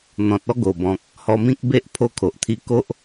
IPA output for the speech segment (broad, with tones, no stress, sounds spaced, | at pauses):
n̪ ɔ̃˨ t̚ ɔ˥˧ ɡ o˨˩ b ɔ̃˨ k̚ | h ɔ˧ m ĩ˦ k̚ b e˦ ʔ pʰ o˧ kʰ o˨ ʔ t̪ʰ i˧ k o˦ ʔ